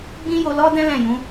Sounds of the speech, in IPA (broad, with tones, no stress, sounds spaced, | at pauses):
ɡ͡b ĩ˦ j o˧ l ɔ˦ d ɛ̃˦ l ɛ̃˦˨ j ũ˨˦